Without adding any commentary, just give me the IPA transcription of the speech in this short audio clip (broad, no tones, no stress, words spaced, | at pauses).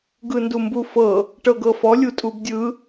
ɡɯndumbufɤ | ʈɤɡɤfɔ lʲutʼubdʲɯ